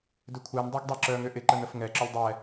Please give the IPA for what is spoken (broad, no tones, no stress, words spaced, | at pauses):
dʏkʷʰɛn dˤeɡdˤeǁœ ŋʏʔɪ ǃənəfŋɛ ǁʏlʲdˤɛ